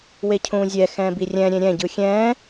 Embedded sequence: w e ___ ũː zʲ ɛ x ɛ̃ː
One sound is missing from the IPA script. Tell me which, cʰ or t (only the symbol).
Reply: cʰ